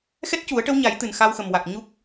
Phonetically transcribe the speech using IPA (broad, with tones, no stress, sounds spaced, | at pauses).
x ɛ˦˥ t̚ c u˨˩˦ ə̯ ʈ ə˧˥ w ɲ a˨˩˦ j t̪ ɨ˨˩ n x a˧ w x ə˨˩ m w a˨˩ k̚ ɲ u˦˥ k̚